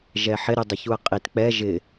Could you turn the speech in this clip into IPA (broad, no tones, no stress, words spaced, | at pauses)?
ʒɛħɪ ɾydˤɪçuɐ̯qʼit k͡pɛ ʒɪ